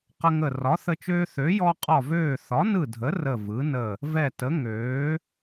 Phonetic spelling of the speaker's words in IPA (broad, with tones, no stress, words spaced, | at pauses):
qə˦ŋə˦˨ rɒ˨˥θə˦t͡ʃøː˦ θø˨˥jɔ˦qʼɒ˦˨vøː˦˨ θɒ˨˥nɯ˦˨dʱə˨˥ rə˦˨vɯ˨˥nə˦˨ | vɛ˦˨tə˨˥ ŋøː˨˥